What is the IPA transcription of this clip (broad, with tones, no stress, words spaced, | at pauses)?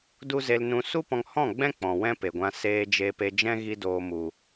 du˦ze˧lnũ˧ su˦pɔ̃˧ŋhɔ̃˦˨ɡ͡bɛ̃˦ k͡pɔ̃˨wɛ̃˦pe˨ɡʷã˧ seː˧ d͡ʒe˧pe˧d͡ʒɛ̃˦ ɣi˦doː˧mu˨